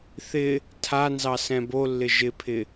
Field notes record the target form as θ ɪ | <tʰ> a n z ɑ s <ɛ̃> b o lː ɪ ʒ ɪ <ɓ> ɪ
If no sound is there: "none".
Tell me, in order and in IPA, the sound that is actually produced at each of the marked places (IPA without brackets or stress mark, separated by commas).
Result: tʰ, ɛ̃, pʰ